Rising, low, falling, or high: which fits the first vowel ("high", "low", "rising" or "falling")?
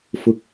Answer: rising